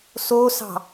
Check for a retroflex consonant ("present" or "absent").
absent